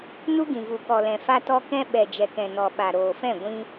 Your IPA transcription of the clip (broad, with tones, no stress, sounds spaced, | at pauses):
n u˦ ɡ ĩ˨ v u˨ k ɔ˨ l ɛ̃˨ f a˧ t ɔ˧ k ɛ̃˧ ɓ ɛ˨ d͡ʒ ɛ˨ k ɛ̃˨ n ɔ˨ ɓ a˨ ɾ oː˨ f ɛ̃˦˨ ɡʷ ĩ˧